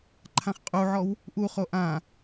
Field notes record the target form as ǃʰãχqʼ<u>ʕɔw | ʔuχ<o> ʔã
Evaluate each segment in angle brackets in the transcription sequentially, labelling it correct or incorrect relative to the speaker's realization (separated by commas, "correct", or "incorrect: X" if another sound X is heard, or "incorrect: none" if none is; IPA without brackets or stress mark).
correct, correct